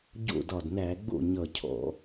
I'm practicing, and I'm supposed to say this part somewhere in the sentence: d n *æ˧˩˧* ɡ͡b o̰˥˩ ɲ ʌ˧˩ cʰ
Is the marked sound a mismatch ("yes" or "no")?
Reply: no